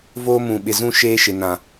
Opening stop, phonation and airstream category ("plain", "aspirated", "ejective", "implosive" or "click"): implosive